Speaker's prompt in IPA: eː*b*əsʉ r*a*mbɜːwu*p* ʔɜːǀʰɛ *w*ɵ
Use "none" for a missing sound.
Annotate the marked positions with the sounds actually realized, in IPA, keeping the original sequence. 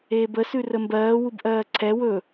b, ə, b, w

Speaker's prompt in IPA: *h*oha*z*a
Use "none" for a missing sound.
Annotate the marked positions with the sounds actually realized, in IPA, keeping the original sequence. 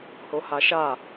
h, ʃ

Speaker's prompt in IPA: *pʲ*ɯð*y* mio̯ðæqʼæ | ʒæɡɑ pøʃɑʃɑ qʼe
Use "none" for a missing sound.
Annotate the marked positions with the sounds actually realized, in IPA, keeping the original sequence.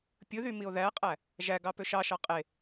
pʲ, y

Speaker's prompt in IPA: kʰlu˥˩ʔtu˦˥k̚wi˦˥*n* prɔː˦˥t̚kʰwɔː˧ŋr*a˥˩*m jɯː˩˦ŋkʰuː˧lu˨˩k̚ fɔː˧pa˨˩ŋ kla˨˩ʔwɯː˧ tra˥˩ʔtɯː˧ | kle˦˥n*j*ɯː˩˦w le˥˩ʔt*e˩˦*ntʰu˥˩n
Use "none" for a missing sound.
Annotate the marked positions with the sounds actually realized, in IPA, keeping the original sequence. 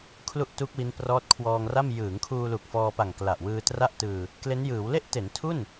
n, a˥˩, j, e˩˦

